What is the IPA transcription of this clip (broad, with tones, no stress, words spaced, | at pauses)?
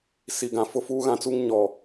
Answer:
si˨ɡã˨ fʊ˦fuː˦ɣã˦t͡su˦ŋ ɲɔ˨